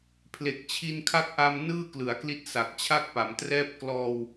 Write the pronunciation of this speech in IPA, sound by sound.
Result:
pʰle˨˩k̚t͡ɕʰi˧nkʰa˦˥k̚ ʔa˧m nɯː˥˩klɯ˩˦a̯kli˦˥t̚ sa˨˩k̚t͡ɕʰa˥˩k̚pa˩˦mtrɛː˥˩p̚ klɔː˧w

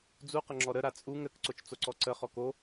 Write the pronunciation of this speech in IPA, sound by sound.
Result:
d͡zuqəŋ͡ǁɔ ɾəɾa t͡sʼuŋ ɾəkǀot͡ʃt͡soǀɔ ǀəχɔk o

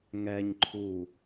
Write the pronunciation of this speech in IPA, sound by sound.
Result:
ŋɛɲ ǃʰu

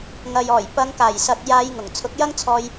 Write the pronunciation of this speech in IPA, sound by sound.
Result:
ŋɐ˨jɔː˨˩j pɐ˨˧ŋkaː˨˩jsɐ˨t̚ jaː˨˧j ŋʊ˨˩ŋt͡sʰʊ˨˥k̚jɐ˥ŋ t͡sʰɔː˧j

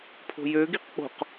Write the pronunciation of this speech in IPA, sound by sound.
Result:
pʰo̤jøɡiq k͡po̤q

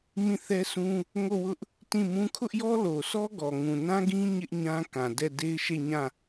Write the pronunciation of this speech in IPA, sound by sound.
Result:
mĩ˦˨θɛ˦sũ˦ | ŋo˦˨wʊ˦ʔ | tĩ˦˨mũ˦ kʰʊ˦ʔjɔ˦lo˨sɔ˦ ɡɔ˨ŋũ˨nã˦ɡĩ˦ ɲɪ˦ʔ ɲã˦kã˨dɛ˦˨ de˦ɪ̯ʃe˦˨ɲã˦˨

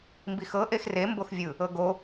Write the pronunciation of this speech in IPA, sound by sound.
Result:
mbixɤ ʔexre mboxvʲɯ | ɤɡo

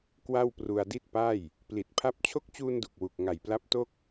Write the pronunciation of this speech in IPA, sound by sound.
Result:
kwa˥˩wpru˧a̯di˥˩t̚pa˥˩j | pli˨˩t̚pʰa˦˥p̚ t͡ɕʰo˦˥k̚t͡ɕuː˧ndu˨˩k̚ wu˨˩k̚ŋa˨˩jpla˦˥p̚to˥˩k̚

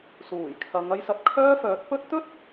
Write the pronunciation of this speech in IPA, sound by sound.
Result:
suː˨˩jkʰɐ˨˧ŋ ɐ˧jsɐ˨˥t̚kʰœː˥fœː˨˥t̚ pɵ˥t̚ t̪ɵ˥t̚

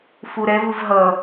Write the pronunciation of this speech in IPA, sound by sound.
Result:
fuɾɛvɯv ɦʌ

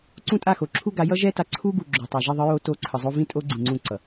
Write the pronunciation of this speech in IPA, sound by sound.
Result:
ǀũ˦tʼa˦˨xo˨ ǁʰu˦ɡa˨˦ jʌ˦ʒɛ˦ta˨ ǀʰu˦ ɡu˨ɡ͡ǁo˨ tˤa˨ʒi˦˨ ðˤɯ˦jo˦to˦˨ ǀʰɯ˨zˤo˦ vĩ˦ tʼo˦ɡ͡ǀĩ˨ŋ͡ǀũ˦˨ǀʌ˨

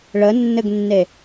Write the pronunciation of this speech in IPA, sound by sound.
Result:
ɭənːɘɡnːe

